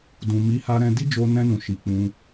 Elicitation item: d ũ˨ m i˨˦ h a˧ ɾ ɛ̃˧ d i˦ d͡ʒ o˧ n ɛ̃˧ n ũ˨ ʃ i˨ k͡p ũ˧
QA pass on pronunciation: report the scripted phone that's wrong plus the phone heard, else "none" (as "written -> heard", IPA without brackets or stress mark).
none